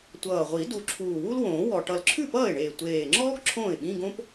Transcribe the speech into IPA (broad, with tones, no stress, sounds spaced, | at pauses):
tʷ ʌː˨˩ ʁʷ i˨˩˦ d u˨˩ ǁʰ uː˨˩ w u˥ l w õː˨˩˦ w ɔ˨˩ ʈ ʌ˨˩ l ǁʰ ʉ˥˩ p ʌː˥˩ ɪ̯ ɳ eː˨˩ tʷ eː˨˩ ŋ͡ǁ ɔː˥ ɡ ǁʰ õː˥˩ ɪ̯ ɓ ĩ˧˥˧ ɡ õ˥ p